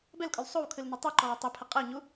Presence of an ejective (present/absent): present